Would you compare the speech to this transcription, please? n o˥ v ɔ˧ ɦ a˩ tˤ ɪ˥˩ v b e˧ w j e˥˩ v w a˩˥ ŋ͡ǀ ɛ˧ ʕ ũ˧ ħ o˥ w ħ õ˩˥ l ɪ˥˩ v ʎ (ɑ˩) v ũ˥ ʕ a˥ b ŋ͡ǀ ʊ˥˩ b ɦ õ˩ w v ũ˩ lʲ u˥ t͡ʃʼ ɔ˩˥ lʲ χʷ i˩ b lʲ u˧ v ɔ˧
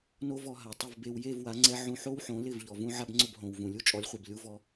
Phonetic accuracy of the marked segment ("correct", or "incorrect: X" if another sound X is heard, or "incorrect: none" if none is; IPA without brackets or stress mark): incorrect: ɔ˩